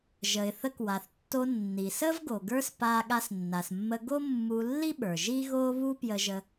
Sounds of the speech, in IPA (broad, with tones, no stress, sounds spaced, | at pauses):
ʒ ə˩ ɪ̯ θ ə˧ k w a˩ θ tː o˧ nː i˩ s ə˥ v ɡ o˩ ɡ ə˞˥ s p a˧ ɠ a˧ s nː a˩ s mː ə˧ ɡ o˥ mː u˧ lː i˥ ɓ ə˞˩ ʒ i˥ ɣ o˥ β u˥ p j ə˧ ʒ ə˧